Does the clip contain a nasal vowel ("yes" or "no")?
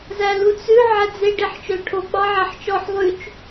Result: no